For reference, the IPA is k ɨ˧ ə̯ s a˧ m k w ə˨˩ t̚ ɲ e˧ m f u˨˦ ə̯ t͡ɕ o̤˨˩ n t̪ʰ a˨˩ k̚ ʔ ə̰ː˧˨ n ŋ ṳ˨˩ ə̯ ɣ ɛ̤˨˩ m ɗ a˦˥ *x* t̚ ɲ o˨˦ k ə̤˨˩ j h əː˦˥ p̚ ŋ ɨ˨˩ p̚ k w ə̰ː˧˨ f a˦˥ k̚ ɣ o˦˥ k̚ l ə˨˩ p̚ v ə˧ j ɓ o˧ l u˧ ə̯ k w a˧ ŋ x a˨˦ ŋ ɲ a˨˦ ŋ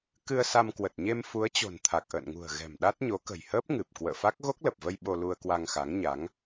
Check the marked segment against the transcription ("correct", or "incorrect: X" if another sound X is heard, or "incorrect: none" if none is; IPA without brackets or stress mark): incorrect: none